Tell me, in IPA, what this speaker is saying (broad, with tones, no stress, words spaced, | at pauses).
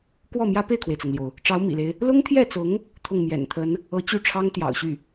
kwɔ˥˩mjä˥ pe˥˩ɪ̯kʰwe˩ɪ̯t͡sɤ˩ŋljo˩ʊ̯ | ʈ͡ʂɑ˧˥ʊ̯mḭ˨˩le˦ɪ̯ | lʊ˥ŋt̪ʰjɛ˥˩t͡sʊ˧˥ŋ | t̪ʰʊ˥˩ŋmjɛ̰˨˩nt̪ʰə˧˥n | ɤ˧˥t͡ɕy˥˩ʈ͡ʂʰɑ˥ŋ t̪jɑ̰˨˩ʊ̯ɕy˥˩